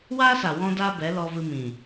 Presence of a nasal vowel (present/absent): present